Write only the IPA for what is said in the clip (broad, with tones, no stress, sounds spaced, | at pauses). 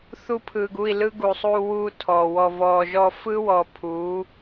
θ u˧ pʰ ɯː˨ ɡ u˦˨ i̯ l ɯ˦ ɡ uː˨ sˤ uː˧ w uː˧ tʰ ɔ˨ w ɔ˨ v ɔː˨ ʒ ɔ˧ f ɯ˦ w ɔ˨ pʰ u˨˦